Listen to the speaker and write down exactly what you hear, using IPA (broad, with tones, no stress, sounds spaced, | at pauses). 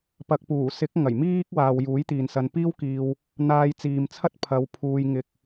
p ɐ˨ k̚ p uː˨˩ s ɪ˨˥ k̚ ŋ ɐ˨˩ j m iː˥ k̚ w aː˨ w j uː˨˥ j t̪ iː˨ n s ɐ˧ n p iː˥ w k iː˧ w | n̪ aː˧ j t͡s iː˨ m t͡sʰ ɐ˥ t̚ pʰ ɐ˨˧ w pʰ uː˧ j ŋ ɪ˧ k̚